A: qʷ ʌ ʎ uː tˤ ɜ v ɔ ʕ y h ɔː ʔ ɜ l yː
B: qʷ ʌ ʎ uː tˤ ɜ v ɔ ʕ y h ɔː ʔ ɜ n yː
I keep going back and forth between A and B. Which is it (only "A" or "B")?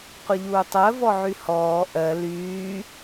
A